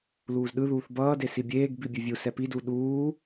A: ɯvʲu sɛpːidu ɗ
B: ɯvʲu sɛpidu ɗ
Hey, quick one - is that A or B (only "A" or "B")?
B